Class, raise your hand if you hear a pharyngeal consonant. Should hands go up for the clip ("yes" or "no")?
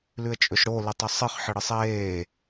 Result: yes